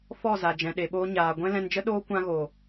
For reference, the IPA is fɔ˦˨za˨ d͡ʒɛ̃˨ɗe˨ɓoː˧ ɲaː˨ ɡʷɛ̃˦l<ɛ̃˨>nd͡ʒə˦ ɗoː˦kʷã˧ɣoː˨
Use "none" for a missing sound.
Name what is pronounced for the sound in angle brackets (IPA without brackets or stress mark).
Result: ɛ̃˧